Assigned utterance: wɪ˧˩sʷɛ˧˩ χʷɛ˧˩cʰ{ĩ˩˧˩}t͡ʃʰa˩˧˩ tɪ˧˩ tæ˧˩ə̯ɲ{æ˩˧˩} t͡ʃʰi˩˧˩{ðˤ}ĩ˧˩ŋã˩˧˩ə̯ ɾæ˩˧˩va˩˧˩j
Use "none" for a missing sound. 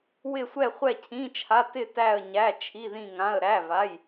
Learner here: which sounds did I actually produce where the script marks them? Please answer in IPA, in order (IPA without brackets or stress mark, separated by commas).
ĩ˩˧˩, æ˩˧˩, ð